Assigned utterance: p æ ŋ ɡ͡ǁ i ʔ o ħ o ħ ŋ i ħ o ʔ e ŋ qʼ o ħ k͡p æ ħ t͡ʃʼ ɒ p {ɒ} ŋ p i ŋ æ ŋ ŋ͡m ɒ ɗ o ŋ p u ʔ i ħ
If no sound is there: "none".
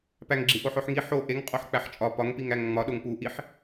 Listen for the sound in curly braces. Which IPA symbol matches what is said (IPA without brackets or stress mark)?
ɒ